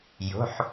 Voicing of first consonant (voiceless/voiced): voiced